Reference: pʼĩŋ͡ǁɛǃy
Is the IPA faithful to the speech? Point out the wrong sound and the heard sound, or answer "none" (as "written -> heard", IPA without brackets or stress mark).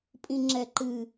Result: y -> ɨ